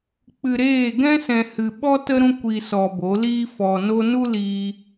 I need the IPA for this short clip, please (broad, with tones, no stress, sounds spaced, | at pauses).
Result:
k͡p ɨ˦ ɾ eː˦˨ ɡ ɛ̃˦ s ɛ̃˧ h ɨ˧ ɓ ɔ˦ t ə˦ ɾ ũ˦ kʷ i˧ s ɔ˧ b o˨˦ l iː˦ f ɔ˧ n o˦ n u˦ l iː˧